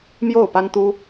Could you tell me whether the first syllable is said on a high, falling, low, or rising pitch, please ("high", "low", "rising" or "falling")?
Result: falling